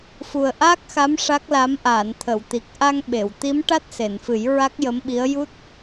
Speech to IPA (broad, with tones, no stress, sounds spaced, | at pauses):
f u˨˩ ə̯ ʔ aː˦˥ k̚ x a˧˥ m ʂ a˦˥ k̚ l a˧˥ m ʔ aː˨˩˨ n t̪ʰ ə˨˩˨ w t̪ i˨˩ k̚ ʔ a˧ ŋ ɓ e˨˩˨ w t̪ i˧˥ m ʈ a˦˥ t̚ s e˨˩˨ n f ɨ˨˩˦ j ɹ a˦˥ k̚ j ə˧˥ m ɓ i˧˥ ə̯ j u˦˥ t̚